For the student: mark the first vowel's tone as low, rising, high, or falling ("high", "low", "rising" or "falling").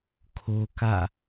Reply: high